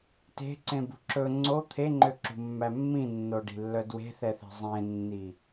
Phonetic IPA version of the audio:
te̤ǀẽbṳ ǁɵ ŋ͡ǀo t̪ʰeŋ͡ǃøǁṳmːæ mːĩnːoɖi̤lːœ dwe̤θɛθe̤ zˤẽnːi

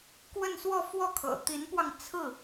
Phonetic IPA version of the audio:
kwə˥˧nswɔ˥˧fwɔ˥˩kʰɤ̰˨˩ t̪i˧˥npwɑ˧ŋ t͡sʰɹ̩˥˩

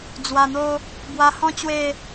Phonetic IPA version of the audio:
d͡zwa˨˩n̪o˧ | bwa˧hɔ̃˦ t͡ɕwe˥˧

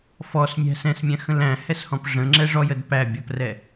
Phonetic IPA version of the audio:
fɔsmʲæ̤ sɛ̃smʲæ̃xə̃l æ̃hɛshɔ̃p ʐə̃ŋ͡ǁɛʐɔjəd pæbʲɤprɛ

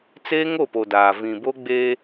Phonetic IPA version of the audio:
t͡se˦ŋo˦˨po˨daː˨ vĩ˨bo˦ɡ͡be˦

